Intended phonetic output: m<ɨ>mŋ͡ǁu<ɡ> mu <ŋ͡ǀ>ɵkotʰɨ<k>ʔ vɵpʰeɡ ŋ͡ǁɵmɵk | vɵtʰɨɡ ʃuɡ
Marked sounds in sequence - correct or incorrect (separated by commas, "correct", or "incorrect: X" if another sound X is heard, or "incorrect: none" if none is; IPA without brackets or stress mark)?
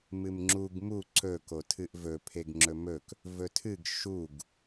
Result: correct, correct, incorrect: ǀ, incorrect: none